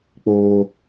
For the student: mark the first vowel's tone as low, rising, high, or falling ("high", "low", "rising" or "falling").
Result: low